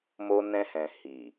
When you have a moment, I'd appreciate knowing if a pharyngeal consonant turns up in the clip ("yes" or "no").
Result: no